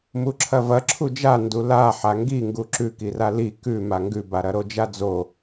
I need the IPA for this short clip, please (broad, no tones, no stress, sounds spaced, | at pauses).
m u ǁʰ ɐ v ɐ ǁʰ u d͡ʒ a n d u l a ħ a ŋ ɡ i ŋ ɡ u ǁ ʉ k i r a l i k ʉ m a ŋ ɡ ʉ b a ɾ ɐ ɾ o d͡ʒ a d͡z o